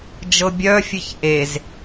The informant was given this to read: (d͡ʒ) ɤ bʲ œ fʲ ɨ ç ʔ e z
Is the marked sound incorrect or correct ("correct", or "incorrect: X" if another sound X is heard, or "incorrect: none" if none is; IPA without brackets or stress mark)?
correct